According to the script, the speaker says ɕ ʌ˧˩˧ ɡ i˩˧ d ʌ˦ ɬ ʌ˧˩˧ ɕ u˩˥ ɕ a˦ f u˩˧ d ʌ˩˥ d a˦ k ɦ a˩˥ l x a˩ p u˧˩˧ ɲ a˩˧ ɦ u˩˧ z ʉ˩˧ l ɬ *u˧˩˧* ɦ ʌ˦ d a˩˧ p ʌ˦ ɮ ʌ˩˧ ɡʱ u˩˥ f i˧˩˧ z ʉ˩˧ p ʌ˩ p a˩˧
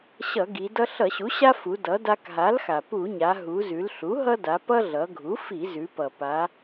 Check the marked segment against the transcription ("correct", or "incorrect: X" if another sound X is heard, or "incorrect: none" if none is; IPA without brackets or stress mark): incorrect: u˩˥